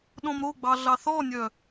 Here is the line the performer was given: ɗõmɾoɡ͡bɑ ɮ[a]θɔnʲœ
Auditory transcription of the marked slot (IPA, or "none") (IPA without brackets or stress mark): ɑ